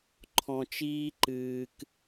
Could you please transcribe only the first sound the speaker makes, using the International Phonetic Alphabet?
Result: ǃʰ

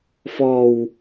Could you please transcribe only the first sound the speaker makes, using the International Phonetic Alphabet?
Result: f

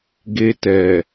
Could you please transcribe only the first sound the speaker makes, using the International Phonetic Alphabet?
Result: ɡ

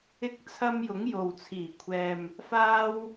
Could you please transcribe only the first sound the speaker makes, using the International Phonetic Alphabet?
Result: ɪ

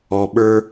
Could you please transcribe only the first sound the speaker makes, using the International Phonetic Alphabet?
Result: ɔ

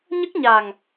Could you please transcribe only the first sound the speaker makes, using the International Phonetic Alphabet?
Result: ɲ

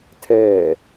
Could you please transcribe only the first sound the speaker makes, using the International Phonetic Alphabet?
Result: tʰ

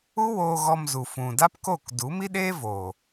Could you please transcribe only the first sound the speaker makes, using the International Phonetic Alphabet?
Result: u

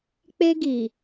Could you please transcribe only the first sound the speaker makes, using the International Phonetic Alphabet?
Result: k͡p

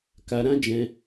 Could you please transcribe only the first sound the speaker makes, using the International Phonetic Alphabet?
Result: k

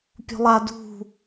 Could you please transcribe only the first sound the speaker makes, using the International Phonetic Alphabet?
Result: pʲ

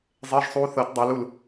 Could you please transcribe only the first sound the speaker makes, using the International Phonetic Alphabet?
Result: zˤ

